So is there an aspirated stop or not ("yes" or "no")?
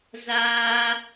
no